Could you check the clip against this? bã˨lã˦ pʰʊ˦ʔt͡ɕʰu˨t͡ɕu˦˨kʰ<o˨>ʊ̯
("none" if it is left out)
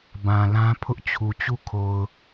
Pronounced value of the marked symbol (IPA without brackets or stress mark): o˨